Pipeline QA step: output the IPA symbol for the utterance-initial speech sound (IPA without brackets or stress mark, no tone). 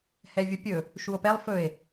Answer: h